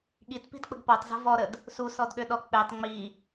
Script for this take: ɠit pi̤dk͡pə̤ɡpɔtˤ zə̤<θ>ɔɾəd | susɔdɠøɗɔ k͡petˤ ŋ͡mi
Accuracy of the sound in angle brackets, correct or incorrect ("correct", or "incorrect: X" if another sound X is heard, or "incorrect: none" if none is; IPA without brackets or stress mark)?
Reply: incorrect: v